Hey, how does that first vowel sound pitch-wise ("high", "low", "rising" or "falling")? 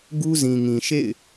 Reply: high